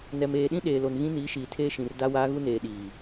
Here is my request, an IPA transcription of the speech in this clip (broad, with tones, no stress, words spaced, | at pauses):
nɛ˨meː˨ɗĩ˦ ɗeː˨lo˨n ɣĩ˦niː˨˦ ʃiː˨tʰeː˦ʃĩ˨r da˦waː˦ ɣu˦neː˨ ɗiː˨